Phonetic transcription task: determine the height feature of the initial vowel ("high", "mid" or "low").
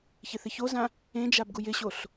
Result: high